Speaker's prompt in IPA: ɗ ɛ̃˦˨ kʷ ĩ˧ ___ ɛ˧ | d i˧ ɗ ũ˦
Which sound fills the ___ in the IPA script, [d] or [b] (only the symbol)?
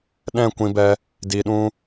b